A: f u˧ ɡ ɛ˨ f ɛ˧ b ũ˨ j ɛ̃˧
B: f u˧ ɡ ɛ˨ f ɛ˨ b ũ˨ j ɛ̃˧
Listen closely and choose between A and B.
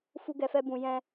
A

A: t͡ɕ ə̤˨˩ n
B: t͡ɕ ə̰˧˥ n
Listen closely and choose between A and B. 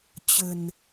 A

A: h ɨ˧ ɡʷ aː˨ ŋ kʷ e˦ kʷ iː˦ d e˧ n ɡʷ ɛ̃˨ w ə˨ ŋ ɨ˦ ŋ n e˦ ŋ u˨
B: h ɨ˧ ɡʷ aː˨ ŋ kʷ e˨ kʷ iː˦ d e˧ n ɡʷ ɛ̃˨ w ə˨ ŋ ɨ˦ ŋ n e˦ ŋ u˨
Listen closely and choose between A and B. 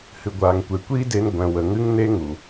B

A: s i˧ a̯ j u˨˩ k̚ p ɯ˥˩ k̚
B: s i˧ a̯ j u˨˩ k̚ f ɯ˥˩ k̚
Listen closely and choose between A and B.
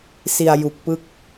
A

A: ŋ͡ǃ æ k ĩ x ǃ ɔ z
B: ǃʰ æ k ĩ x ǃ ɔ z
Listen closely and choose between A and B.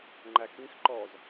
A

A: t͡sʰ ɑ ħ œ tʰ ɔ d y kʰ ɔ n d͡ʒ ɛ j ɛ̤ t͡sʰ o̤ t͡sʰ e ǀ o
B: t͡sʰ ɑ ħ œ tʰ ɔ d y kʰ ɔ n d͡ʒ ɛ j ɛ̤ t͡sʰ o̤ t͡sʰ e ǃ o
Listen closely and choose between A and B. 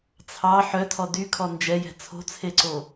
A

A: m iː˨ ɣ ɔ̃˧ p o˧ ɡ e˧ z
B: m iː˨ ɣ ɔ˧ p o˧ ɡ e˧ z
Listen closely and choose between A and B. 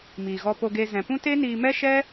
B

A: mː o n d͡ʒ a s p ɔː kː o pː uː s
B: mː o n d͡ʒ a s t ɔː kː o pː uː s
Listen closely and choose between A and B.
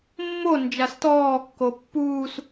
B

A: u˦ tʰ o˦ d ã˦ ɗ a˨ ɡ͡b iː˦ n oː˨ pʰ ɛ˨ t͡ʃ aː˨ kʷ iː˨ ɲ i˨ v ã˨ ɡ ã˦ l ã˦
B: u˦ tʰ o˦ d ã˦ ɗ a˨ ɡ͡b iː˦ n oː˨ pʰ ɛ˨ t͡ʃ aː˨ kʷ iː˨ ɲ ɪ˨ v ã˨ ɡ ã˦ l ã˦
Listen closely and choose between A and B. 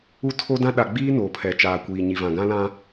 A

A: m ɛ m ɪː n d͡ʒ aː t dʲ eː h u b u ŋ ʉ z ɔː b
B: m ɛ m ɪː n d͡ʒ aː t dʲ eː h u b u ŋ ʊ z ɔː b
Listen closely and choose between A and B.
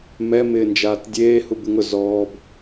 B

